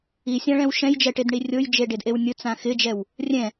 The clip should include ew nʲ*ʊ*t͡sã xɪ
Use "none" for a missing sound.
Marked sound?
ʊ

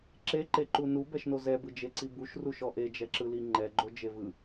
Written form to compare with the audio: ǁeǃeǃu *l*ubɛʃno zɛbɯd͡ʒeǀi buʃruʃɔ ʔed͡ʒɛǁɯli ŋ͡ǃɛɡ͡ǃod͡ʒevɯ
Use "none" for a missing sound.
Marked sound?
n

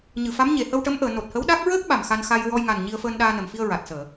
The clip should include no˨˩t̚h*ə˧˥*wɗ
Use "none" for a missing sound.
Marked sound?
ə˧˥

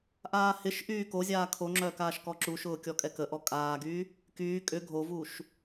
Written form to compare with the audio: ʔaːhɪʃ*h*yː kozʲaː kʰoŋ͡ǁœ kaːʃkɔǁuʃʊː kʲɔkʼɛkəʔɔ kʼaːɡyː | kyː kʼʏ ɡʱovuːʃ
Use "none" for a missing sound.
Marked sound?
ʔ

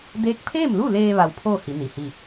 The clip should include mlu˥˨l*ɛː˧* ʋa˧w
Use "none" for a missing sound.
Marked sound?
eː˧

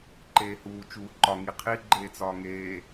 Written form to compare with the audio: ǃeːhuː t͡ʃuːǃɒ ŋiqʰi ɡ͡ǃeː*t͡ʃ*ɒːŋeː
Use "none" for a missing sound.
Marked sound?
t͡s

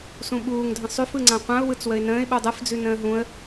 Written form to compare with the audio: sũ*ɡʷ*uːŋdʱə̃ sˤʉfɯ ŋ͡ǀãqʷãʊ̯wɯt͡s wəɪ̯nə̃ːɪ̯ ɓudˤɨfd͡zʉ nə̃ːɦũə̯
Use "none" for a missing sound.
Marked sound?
ɓ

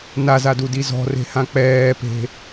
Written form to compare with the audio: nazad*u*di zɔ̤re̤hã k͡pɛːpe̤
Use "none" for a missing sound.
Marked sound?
u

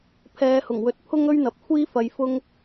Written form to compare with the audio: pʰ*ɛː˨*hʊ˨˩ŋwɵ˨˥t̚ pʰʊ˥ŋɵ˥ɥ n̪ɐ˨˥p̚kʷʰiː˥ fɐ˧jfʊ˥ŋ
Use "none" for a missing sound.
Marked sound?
ɛː˨˧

